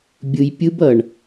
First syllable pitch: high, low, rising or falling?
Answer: low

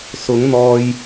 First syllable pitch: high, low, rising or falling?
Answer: rising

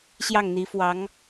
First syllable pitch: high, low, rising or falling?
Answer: falling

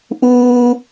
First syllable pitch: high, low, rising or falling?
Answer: high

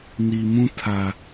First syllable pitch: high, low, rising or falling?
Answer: low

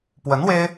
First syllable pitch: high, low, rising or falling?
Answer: rising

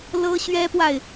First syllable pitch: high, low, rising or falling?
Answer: high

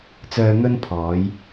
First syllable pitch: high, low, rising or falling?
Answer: low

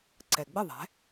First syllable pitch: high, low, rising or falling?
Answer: low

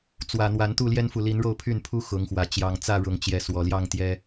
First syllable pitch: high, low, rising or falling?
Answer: low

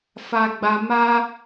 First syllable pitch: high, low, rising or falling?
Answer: high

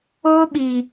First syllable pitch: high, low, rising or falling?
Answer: high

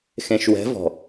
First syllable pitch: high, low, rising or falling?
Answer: low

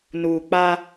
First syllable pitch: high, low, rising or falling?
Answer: low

